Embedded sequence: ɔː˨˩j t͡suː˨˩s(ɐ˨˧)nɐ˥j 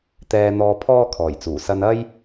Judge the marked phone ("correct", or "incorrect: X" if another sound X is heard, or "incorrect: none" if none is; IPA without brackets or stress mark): incorrect: ɐ˧